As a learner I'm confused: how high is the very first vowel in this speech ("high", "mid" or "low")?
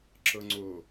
mid